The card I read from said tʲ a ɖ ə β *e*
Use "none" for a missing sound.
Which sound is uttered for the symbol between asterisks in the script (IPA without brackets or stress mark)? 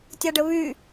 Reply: y